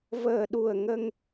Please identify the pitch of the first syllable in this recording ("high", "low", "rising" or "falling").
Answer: low